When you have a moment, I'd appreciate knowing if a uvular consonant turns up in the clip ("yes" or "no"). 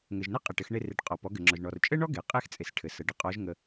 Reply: yes